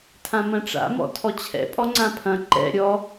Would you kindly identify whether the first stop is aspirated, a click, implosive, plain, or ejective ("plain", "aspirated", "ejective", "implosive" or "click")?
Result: aspirated